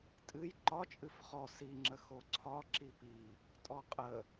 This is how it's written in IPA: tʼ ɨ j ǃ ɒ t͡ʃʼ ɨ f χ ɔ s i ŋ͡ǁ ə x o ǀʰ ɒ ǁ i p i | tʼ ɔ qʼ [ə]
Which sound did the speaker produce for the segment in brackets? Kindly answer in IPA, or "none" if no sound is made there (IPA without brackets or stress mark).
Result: ə